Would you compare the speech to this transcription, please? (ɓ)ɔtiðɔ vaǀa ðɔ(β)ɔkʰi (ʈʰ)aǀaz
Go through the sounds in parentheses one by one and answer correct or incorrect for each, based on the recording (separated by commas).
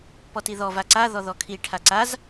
incorrect, incorrect, correct